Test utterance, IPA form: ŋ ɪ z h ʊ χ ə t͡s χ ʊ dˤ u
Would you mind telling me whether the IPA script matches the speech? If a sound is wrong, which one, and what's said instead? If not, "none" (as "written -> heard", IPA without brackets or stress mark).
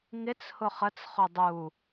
z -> t͡s